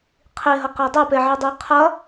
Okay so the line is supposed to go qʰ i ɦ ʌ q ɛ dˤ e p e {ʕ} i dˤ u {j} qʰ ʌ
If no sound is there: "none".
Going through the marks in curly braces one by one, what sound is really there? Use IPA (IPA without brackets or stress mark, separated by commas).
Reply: ʕ, j